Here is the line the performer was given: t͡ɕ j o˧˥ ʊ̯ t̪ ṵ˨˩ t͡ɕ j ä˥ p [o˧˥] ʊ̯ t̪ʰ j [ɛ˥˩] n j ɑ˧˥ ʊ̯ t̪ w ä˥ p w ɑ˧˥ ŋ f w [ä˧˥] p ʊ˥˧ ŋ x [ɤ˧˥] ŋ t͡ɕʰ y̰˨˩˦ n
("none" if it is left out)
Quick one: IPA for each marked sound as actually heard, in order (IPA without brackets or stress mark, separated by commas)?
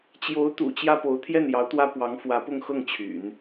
o˧˥, ɛ˥˩, ä˧˥, ɤ˥˩